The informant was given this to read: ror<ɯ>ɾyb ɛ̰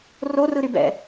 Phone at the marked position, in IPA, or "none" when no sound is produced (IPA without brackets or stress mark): ɯ